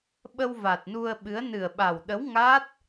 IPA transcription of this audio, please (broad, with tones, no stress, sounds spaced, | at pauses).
ɓ ə˧ w v a˨˩ t̚ n u˧ ə̯ ɓ ɨ˨˦ ə̯ n ɨ˨˩ ə̯ ɓ a˨˩ w ɗ ə˨˦ w ŋ a˦˥ t̚